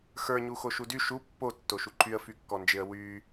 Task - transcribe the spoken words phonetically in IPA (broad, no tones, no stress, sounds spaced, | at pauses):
x ə˞ ɲ u x o ʃ u d y ʃ u pː o tː o ʃ u ǃʰ y ə̯ f y kː ɔ n d͡ʒ ɪ ə̯ w y